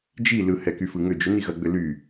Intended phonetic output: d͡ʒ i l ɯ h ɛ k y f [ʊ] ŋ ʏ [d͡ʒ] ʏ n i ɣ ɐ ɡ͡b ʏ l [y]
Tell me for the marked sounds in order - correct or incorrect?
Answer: incorrect: ɯ, correct, correct

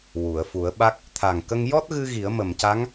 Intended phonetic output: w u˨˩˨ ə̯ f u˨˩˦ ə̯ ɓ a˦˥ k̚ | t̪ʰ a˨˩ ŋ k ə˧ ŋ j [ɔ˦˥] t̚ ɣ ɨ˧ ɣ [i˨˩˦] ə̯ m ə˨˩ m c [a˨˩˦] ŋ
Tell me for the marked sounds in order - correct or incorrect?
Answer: correct, correct, incorrect: a˧˥

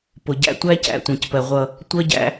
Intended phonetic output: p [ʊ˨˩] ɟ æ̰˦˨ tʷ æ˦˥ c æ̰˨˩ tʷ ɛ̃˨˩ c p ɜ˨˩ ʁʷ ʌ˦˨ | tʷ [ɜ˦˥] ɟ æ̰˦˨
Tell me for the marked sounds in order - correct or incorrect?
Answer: correct, correct

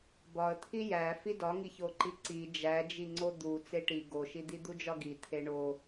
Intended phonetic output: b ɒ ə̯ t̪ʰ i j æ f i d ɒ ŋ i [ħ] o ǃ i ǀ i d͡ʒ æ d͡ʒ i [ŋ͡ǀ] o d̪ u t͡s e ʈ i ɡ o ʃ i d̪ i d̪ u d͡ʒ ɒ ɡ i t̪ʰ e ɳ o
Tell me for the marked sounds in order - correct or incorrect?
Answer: incorrect: ç, correct

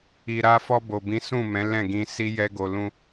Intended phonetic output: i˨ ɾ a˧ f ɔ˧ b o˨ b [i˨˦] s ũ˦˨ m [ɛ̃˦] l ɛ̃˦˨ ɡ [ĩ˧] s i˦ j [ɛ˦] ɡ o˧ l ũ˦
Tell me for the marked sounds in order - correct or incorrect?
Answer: incorrect: ĩ˨˦, incorrect: ɛ̃˨˦, correct, correct

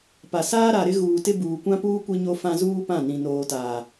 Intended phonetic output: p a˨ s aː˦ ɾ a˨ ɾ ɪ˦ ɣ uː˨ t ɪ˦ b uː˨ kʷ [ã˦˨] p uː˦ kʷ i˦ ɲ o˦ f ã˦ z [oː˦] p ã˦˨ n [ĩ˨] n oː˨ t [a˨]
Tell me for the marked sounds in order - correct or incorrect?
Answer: incorrect: ã˦, incorrect: uː˦, correct, incorrect: aː˨

